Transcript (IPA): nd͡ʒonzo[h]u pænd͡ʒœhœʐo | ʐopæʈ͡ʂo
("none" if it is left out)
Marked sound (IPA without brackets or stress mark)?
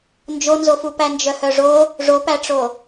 f